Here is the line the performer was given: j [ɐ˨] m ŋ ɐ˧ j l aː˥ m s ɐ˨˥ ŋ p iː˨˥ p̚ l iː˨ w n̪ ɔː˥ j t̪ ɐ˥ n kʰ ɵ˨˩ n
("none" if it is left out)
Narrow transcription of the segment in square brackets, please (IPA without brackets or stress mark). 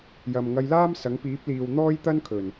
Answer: ɐ˨